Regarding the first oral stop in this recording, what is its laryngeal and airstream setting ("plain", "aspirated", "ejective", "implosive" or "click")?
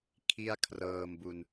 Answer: aspirated